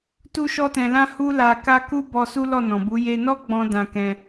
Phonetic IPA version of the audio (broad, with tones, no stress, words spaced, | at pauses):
tu˦ʃɔ˦tɛ̃˧lã˦ hu˦la˧ka˦ ku˦bɔ˧ su˦lɔ˦˨nɔ̃˨bu˨˦ je˧nɔ˦ ɡ͡bɔ̃˦ dã˧kɛ̃˧